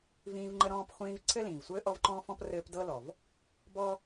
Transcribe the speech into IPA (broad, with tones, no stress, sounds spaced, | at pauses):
v ĩː˦ v ŋ͡ǃ ə˥ ɾ ɔ̃ː˦ p χʷ ĩː˦ v ǀʰ ɘ˥ l ĩː˩ v sʷ ɘː˥ ʔ ɔ˥ v ǃ ɔ̃ː˥ f ɔ̃˥ p r ɘː˦ p d ɤ˥ l ɔ˩ v | b ɔ˥